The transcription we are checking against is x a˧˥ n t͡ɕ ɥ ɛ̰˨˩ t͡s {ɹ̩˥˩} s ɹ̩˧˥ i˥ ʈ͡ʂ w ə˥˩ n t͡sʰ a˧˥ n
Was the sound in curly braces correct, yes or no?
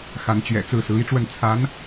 yes